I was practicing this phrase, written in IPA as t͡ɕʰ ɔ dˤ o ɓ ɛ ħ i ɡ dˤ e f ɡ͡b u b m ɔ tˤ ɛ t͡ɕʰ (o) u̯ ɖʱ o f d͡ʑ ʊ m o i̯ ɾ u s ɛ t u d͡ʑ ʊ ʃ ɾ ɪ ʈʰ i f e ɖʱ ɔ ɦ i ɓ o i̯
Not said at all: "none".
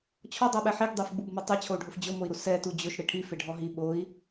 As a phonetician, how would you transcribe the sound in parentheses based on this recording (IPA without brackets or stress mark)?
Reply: o